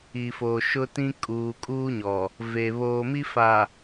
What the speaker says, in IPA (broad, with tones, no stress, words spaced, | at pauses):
i˨foː˨ ʃʊ˦tĩ˦ kʼuː˨kʼuː˦ɲɔ˨ | ve˨ βoː˨mi˦ fa˨